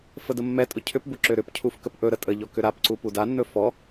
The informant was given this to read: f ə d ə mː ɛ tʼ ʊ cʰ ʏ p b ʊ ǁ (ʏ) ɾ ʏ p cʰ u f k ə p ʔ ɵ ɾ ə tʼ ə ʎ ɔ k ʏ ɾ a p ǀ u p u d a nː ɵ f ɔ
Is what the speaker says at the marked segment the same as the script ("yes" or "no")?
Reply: yes